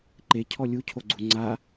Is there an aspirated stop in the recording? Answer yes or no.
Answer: yes